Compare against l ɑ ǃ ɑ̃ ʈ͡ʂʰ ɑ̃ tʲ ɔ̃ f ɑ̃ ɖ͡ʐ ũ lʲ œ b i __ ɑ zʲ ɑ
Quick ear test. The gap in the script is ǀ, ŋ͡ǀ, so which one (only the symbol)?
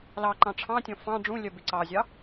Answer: ǀ